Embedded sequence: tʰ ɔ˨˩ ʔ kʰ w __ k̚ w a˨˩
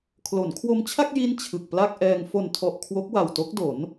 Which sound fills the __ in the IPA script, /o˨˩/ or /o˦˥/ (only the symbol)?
o˦˥